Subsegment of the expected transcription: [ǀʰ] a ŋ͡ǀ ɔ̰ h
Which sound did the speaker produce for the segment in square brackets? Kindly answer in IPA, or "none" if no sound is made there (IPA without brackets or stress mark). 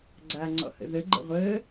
ɡ͡ǀ